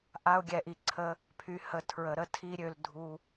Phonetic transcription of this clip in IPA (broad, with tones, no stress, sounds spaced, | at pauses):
ʔ a˧ ʊ̯ ɡʲ ɛ˨ ʔ i˨ ǀʰ ə˧ | pʰ y˨ h ə˨ tʰ ɹ ə˨ ɾ ə˦ tʰ i˦ ɾʲ ø˧ l dʱ u˧